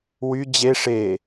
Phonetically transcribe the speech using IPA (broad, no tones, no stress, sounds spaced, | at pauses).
w y d͡ʑ e ʂ e